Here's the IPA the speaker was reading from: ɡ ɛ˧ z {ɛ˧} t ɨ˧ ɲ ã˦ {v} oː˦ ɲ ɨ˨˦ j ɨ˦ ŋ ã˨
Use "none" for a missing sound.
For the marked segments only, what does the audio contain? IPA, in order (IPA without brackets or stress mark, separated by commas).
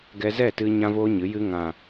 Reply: ɛ˦˨, v